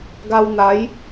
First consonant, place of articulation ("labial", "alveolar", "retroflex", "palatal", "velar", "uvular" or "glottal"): velar